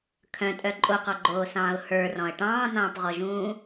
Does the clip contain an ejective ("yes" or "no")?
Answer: yes